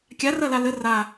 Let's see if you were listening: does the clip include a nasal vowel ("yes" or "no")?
no